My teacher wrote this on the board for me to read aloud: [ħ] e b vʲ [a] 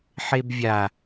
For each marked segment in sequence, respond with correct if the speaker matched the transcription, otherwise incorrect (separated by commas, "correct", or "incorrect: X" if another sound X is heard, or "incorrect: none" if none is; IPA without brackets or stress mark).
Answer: correct, correct